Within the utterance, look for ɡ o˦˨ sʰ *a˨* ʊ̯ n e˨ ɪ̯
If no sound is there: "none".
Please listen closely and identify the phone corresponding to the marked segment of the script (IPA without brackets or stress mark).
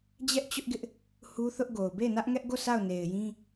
a˦˨